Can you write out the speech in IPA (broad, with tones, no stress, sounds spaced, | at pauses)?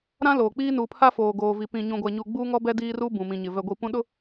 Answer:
ɾ ã˦ l oː˨ k͡p iː˦ n u˨ pʰ a˦ f oː˨ ɡ oː˨ v i˨ p ĩ˨ ɲ ũ˨ ɡʷ a˨ ɲ uː˨ ɡ͡b uː˦ ŋ ɔ˦ b ɛ˦ d iː˦ r uː˦ b ũ˨ m ĩ˨ ɲ ɪ˨ v ɛ˨ ɡʷ i˨ p ũ˦ ɗ ʊ˦